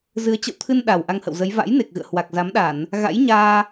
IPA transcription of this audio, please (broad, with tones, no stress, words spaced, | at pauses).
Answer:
zɨ˨˦ə̯ t͡ɕə̰˧˨wt̪ʰɨ˧n ɗa˨˩w ʔa˧ŋhə̰˧˨wzə˨˦j va̰˧˥jne˨˩k̚ɣɨ̰˧˨ə̯ hwa˨˩k̚za˨˦mɗa˧˩˨n | ɣa̰˧˥jɲaː˧